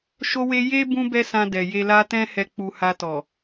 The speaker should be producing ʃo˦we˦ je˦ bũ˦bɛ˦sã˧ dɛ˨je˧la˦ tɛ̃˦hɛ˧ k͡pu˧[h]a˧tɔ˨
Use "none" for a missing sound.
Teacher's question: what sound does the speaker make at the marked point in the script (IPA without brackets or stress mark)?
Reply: h